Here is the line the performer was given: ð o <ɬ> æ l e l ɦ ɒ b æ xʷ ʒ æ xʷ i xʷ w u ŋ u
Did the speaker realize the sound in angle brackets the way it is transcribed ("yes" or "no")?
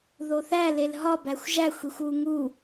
no